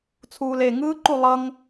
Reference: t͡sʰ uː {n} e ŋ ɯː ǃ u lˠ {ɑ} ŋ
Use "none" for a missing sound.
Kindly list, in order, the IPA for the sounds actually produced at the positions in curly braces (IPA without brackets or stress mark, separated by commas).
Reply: l, ʌ